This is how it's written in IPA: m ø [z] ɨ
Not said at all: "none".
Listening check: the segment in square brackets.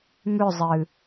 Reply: zˤ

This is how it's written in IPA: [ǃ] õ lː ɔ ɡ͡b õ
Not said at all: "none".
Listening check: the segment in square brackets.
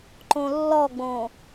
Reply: ǃ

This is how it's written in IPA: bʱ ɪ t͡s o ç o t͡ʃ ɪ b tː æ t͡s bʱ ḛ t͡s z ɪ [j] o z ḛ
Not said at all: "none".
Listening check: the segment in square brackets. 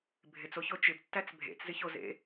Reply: ç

